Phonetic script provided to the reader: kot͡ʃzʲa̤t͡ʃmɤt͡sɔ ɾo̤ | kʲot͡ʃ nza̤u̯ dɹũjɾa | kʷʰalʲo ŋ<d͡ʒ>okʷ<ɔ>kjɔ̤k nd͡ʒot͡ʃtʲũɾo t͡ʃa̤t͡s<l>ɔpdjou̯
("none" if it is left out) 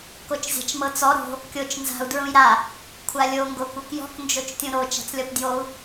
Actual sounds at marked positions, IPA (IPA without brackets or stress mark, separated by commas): ɡ, ɤ, lʲ